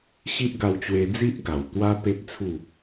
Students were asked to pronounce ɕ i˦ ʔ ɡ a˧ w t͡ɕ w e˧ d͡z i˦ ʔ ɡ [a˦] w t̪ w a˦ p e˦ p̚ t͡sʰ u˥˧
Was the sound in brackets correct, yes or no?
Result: no